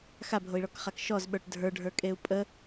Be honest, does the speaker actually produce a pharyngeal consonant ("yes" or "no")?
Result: no